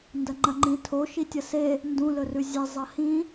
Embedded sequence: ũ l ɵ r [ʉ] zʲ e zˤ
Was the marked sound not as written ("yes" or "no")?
no